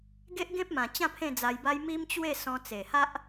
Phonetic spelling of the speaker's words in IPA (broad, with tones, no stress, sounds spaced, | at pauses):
ɡ e˦ ʔ ɡ ẽ˦ p̚ m ã˨˩ t͡ɕ ã˥˧ pʰ ẽ˥˧ d͡z a˧ j b a˦ j m i˦ m t͡ɕ w e˥˧ s ɔ̃˧ t͡s e˨˩ h a˦ ʔ